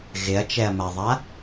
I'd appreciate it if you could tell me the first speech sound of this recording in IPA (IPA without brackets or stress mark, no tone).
ɣ